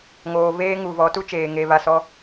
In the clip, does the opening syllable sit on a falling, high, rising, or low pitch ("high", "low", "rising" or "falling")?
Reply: low